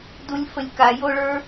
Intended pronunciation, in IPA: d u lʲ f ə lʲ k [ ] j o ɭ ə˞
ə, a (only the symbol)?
a